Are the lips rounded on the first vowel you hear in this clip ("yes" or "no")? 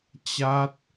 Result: no